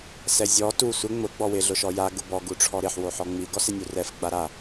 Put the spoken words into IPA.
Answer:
sɛzʲɔ tu sʷɪ ŋ͡mʊ ɡ͡bɔwɪ ɮʊʃɔja ɡʊbɔ ɡuʈ͡ʂʰɔɾɪħ woħɔŋ͡mi ɡɔsɪnʲurɛf ɡ͡baɾa

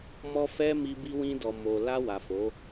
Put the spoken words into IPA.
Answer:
mɔ˧ fɛ˧ mi˧ bi˧wĩ˧dɔ˨ mo˨la˧wa˨ fo˨˦

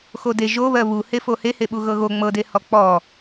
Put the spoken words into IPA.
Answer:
xode ʒoβɜ βuhe fohe heɓuɣɤɣo ŋ͡mɤdehɔ k͡pɔ

